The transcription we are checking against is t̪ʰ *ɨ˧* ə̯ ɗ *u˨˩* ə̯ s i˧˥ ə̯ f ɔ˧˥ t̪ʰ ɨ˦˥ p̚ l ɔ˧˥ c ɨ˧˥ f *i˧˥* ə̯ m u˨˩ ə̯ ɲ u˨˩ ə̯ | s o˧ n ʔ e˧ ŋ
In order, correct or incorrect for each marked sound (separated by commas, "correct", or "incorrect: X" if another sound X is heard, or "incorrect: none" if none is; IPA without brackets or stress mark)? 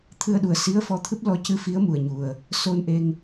correct, correct, correct